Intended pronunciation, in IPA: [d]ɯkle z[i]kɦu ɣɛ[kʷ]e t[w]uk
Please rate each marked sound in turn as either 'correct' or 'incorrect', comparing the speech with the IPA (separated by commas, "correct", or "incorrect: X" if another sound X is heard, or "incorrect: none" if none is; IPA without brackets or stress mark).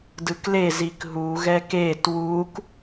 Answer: correct, correct, incorrect: k, correct